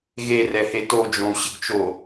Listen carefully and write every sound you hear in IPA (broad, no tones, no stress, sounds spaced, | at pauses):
ɣ e r ɛ h e t o d͡ʒ õ u̯ ɕ ɪ ɡ t͡ʃ o